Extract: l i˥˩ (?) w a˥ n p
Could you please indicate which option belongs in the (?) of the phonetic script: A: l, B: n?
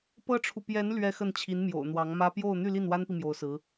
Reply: B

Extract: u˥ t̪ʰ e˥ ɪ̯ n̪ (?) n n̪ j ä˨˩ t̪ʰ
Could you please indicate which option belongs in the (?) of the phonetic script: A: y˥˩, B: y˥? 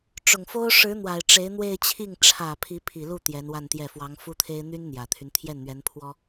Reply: B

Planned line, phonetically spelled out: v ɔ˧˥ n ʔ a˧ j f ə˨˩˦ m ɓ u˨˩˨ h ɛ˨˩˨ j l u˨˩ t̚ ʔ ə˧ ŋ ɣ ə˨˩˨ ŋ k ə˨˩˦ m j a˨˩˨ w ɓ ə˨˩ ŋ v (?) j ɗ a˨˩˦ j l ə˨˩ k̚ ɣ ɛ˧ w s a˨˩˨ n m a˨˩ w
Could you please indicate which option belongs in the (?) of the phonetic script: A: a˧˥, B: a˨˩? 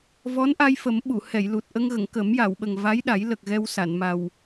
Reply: A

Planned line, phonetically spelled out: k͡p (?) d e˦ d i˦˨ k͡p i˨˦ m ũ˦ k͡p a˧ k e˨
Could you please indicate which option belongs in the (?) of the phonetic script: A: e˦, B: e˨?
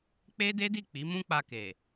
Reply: A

